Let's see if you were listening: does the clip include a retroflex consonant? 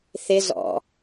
no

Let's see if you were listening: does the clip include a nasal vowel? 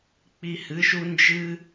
no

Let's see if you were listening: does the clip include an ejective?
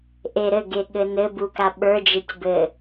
no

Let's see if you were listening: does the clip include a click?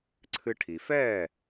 yes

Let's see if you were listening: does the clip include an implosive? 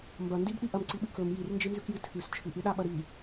yes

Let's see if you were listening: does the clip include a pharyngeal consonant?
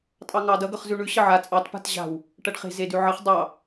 yes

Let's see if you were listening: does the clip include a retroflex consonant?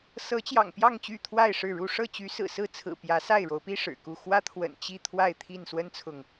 yes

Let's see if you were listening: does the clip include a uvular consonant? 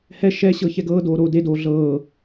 no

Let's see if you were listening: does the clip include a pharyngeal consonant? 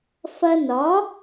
no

